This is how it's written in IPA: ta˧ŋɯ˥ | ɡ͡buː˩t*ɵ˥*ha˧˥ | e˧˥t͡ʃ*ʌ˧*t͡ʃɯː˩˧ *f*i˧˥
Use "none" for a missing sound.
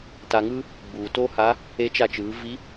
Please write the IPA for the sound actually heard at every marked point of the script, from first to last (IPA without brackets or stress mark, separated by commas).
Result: o˥, a˧, v